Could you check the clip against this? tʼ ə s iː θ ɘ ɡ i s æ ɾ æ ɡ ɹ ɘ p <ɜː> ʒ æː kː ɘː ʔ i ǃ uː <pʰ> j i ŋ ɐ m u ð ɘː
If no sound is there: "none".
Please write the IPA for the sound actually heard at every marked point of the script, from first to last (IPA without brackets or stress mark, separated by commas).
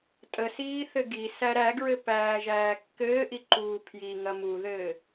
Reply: æː, pʰ